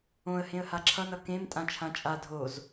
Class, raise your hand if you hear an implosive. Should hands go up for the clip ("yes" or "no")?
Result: no